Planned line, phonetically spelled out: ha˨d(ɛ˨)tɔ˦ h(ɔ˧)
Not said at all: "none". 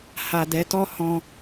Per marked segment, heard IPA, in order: ɛ˨˦, ɔ̃˧

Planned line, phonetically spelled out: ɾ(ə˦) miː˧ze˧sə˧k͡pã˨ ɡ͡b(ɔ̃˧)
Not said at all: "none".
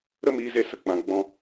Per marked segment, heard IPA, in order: ə˦, ɔ̃˧

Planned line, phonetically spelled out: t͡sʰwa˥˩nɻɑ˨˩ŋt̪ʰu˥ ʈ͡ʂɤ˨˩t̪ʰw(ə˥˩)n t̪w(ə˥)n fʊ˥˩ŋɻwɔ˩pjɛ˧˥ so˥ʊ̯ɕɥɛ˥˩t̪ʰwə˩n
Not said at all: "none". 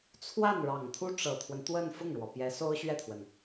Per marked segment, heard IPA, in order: ə˦, ə˥˧

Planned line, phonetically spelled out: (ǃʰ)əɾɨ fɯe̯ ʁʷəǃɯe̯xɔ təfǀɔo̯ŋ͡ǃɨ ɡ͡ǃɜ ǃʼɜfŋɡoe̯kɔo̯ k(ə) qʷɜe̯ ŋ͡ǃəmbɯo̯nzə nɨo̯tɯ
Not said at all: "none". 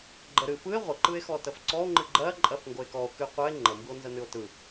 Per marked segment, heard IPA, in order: ɡ͡ǃ, ɨ

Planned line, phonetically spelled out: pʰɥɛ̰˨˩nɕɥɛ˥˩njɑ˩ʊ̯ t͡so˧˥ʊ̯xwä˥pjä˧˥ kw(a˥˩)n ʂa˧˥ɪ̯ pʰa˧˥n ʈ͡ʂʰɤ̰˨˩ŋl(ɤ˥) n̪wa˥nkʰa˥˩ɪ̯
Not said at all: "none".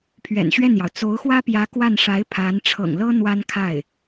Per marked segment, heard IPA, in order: a˥˩, ɤ˥

